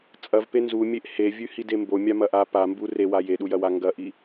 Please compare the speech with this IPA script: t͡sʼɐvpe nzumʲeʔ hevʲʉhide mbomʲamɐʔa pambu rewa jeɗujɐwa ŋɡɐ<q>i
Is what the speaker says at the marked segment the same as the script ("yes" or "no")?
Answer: no